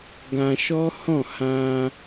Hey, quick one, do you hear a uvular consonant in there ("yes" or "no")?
no